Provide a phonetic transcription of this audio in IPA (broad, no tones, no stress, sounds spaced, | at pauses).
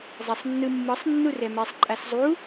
zˤ ɛ sˤ nː ɯ mː ɯ sˤ nː u r ɛ m ɛ sˤ ǃʼ a s zˤ u